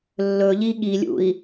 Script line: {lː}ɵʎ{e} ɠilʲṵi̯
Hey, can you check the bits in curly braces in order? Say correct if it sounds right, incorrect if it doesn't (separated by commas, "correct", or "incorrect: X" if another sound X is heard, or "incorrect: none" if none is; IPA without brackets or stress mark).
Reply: correct, incorrect: i